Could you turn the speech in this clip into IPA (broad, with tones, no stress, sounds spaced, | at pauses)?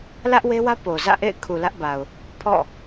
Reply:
l ä˦ ʔ w e˦ w ä˦ p o˨ z ä̰˦˨ ʔ ḛ˦˨ ɪ̯ kʰ u˨ l ä˦ ʔ b a˨ ʊ̯ | pʰ ɔ̰˦˨